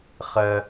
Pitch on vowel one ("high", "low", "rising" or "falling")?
high